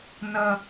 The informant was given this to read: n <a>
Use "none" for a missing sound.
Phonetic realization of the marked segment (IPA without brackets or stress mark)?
ɐ